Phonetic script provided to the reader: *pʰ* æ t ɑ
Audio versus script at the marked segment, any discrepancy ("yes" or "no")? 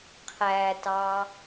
yes